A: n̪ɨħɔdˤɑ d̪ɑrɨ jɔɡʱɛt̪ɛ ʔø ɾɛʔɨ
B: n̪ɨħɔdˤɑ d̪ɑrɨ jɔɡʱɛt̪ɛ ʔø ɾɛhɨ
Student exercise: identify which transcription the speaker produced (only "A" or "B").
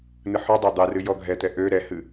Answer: B